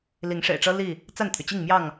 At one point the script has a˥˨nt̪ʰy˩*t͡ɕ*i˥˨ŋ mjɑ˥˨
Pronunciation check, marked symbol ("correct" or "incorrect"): correct